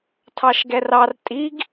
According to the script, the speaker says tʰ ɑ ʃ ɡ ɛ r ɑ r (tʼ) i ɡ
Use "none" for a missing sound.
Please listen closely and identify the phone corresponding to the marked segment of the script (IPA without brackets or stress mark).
tʼ